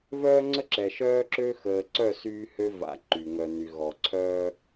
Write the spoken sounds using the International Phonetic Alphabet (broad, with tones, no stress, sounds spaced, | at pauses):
v œː˦ ŋ͡ǀ ə˦ ǁ ɛ˨ ʃ œː˦ ǁ ø˦ x əː˨ ǀ œ˦˨ s yː˦ h ø˦ v a̰˨˦ ǃ y˨ ŋ œ˨ n y˨ ɣ ɔ˨ ǀʰ œː˦